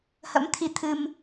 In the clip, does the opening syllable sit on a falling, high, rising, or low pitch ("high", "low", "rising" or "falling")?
rising